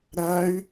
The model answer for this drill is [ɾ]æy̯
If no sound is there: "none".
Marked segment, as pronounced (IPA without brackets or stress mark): ɾ